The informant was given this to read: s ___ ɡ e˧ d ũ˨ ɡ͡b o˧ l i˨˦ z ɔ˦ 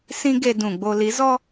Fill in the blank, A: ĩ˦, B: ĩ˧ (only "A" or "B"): A